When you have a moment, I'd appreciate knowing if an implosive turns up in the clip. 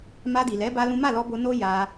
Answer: no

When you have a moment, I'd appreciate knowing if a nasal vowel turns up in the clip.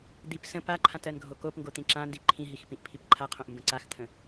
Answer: yes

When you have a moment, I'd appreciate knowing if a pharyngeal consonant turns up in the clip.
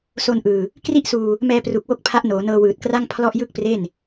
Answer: no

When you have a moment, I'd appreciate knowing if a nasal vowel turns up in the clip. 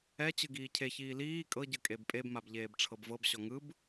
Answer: no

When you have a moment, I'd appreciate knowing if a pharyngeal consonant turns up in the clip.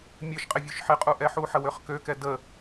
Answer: yes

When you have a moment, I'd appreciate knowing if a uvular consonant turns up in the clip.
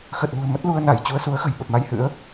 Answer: no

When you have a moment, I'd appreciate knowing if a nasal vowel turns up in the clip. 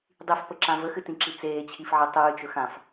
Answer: yes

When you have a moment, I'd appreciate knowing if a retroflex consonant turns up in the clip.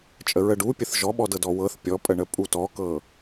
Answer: yes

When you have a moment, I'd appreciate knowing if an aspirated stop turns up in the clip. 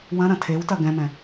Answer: yes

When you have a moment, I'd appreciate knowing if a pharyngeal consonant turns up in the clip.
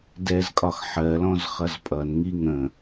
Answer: yes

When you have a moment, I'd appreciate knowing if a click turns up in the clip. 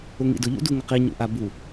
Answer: no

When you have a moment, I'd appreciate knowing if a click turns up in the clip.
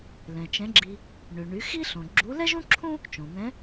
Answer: yes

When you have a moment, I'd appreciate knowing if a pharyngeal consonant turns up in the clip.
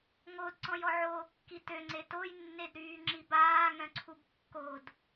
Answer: yes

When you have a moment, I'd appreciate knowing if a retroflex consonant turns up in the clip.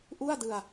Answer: no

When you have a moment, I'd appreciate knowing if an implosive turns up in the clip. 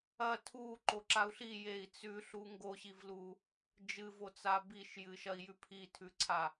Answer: no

